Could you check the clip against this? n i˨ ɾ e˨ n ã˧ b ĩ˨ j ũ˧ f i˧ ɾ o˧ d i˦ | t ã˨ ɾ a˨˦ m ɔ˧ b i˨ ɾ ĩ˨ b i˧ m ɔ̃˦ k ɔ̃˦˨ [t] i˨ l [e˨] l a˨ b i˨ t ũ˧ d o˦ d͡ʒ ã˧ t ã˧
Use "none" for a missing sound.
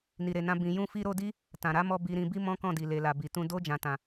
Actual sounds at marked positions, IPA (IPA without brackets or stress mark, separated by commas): d, e˨